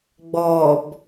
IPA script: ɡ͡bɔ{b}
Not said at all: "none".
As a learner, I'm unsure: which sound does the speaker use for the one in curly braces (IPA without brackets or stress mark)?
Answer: b